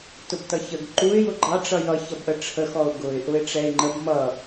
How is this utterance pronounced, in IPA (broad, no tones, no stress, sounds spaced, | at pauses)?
t ʊ b t ʌ ç ə ɡ ǃ u ɪ̯ j ʊ ɡ͡ǃ ɑ ʈ͡ʂ ʌ j ʌ ç ʌ b ʔ ə ʈ͡ʂʰ ə x ɔ ʊ̯ ɡ ʊ ɪ̯ ʔ ʊ ɪ̯ ʈ͡ʂ ɛ ɪ̯ ŋ͡ǃ ə b m ʌ